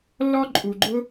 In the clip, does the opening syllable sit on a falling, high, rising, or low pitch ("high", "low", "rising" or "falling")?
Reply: high